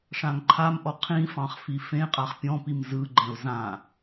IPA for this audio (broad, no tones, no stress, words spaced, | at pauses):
ʂãŋǃʰamʔɔ qʰĩfɑ̃χ fifẽqʼaχ pʲɔ̃pim zɯɡ͡ǃɛ̃ʊ̯ zã